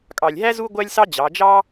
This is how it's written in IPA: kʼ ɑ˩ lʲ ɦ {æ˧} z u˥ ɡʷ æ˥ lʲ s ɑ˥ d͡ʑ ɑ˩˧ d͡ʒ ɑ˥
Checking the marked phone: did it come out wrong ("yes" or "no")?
no